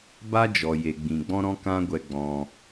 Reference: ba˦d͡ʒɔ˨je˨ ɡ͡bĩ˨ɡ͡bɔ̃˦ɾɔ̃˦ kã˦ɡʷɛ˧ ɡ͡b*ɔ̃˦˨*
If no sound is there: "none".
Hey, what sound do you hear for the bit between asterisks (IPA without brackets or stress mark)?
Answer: ɔ̃˧